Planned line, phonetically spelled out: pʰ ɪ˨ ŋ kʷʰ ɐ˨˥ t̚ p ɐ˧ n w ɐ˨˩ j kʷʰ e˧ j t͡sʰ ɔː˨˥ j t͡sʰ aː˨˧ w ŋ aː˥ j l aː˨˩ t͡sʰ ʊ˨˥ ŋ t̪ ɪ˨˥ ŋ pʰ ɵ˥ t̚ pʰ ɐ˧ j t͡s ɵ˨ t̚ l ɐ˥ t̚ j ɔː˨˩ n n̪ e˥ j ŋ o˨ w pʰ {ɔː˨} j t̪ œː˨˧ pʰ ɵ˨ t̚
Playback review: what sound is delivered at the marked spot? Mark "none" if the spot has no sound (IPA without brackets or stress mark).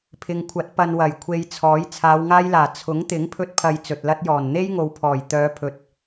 ɔː˨˩